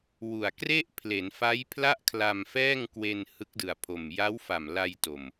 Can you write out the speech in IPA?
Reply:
wu˨˩a̯kre˥˩ʔ pʰle˩˦nfa˦˥j pʰla˥˩ʔkʰla˧mfɛː˥˩ŋ kwe˧n hɯ˦˥k̚dɯ˨˩a̯pʰo˨˩m ja˦˥wfa˨˩m la˧j to˨˩m

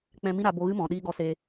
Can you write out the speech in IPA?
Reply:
k͡pɛ̃˧mĩ˦ ɾa˧ bo˧ɣɨ˦ mɔ̃˨ɗiː˦ɡɔ˧se˧

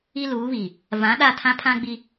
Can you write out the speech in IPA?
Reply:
i˦luː˨˦βi˨ | vã˨˦ ɗa˦˨tʰã˦pʰã˦ ɡ͡bi˦

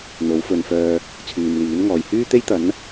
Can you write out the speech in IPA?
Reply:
n̪o˨˥wfɵ˨nfœː˧ | t͡sʰyː˨mliː˨˥nŋɔː˨j hyː˥t̪e˥jt̪ɐ˨˥n

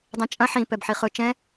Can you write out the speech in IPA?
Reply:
dˤɛ̃t͡ʃʼɐ̃ ħĩ pɛbħiχɵ t͡ʃɛ̃

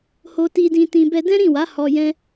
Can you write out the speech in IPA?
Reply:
ho˧ti˧dĩ˧tĩ˧ bɛ˧dɛ̃˦ɾĩ˦˨wa˨˦ hɔ˧jɛ̃˦

